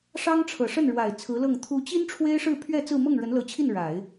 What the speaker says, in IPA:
ʂɑ˥ŋʈ͡ʂʰɤ˨˩ ʂə˥˩nɻwa˨˩ɪ̯ t͡sʰɹ̩˧˥lɤ˥˩ŋ t̪ʰu˧˥t͡ɕi˥n ʈ͡ʂʰwe˥ɪ̯ʂɻ̩˥˧pʰɥɛ˥˧ t͡sɹ̩˥˧ mɤ˥˩ŋɻə˧˥nlɤ˧˥t͡ɕʰi˥˩n ɻa˨˩˦ɪ̯

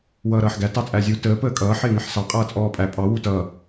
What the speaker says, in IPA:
wʌːɾʌːħɡæ tɑt͡sʼæzʲu təː pəːkʼʌː ħɪːŋɪħsɑ qʼʌːt͡sʼɔːpʼæ pʼɑ wutʌː

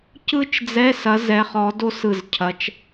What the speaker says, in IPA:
cɯ˥t͡ʃd͡zɛ˧˥˧sɐ˨˦z ɛ˨˦χɔ˨˦ do˥sɯ˧˩zcʰɐ˨˦t͡ʃ

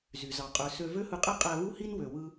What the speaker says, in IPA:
zy˩ zɑ˩qʼø˩sø˧ vø˥hɯ˧qʼe˥ qʼæ˧βu˥hi˥n wø˩ wɯ˧

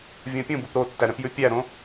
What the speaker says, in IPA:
vʲõpʲũbup ɾotːæɾɛ̃pjʉ pʲæɾõ

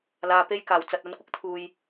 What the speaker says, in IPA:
laː˧pe˥j kaː˨˩wt͡sɐ˨t̚ɐ˨˧nkʷɪ˧k̚ t̪ʰuː˨j

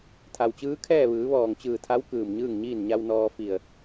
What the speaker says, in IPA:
t̪ʰa˩wt͡ɕɯː˧˥kʰɛː˥˨ ʋɯː˩˧ʋɔː˧˩ŋt͡ɕɯː˧˩t̪ʰa˧˥w kɯː˧˩mɲɯː˥˨ŋɲiː˥˨n ɲa˧wnɔː˧ fi˧˩ə̯

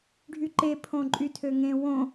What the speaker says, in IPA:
ɖʱyǃe pʰõǃʼytʰøŋẽ wõ

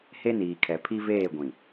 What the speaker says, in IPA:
he˦niː˨kʰɛ˨ pʰi˦veː˦˨ɡʷĩ˨

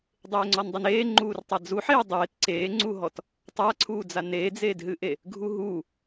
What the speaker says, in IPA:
dˤeːŋ͡ǀɔndˤɘneː ŋ͡ǃuːrtˤad͡zuħeː dˤeːt ǀeːŋ͡ǀuɦɔt | tˤaǀʰuːd͡za neːd͡zeːdɦɨʔe | ɡʱuɦu

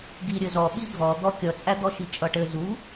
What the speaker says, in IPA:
ɡi ɾʲɘzɔ ɓiɡʱɔ d̪ɔ kʲʌt͡sʼæd̪ɔ ʃit͡ʃʼʌʈɘ zu

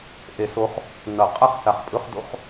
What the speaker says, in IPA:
ʔe˨˩˦so˨˦χ | nʌ˨˩˦qʼa˥˧χ sa˨˩χ pʼɯ˧˥˧χ do̰˥˧χ

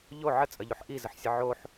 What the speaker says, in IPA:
ʎo ʕət͡sʼəʎoħ ʔizəħsʲə ʕoħ

